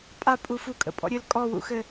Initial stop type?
ejective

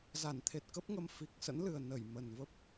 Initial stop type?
aspirated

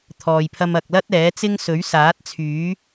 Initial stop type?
aspirated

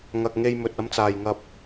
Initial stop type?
plain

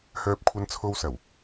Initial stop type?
plain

